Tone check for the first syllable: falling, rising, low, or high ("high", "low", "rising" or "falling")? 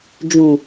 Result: low